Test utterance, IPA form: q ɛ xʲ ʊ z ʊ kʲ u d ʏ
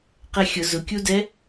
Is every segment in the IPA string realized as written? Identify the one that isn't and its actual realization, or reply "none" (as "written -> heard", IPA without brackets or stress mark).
ʏ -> ɛ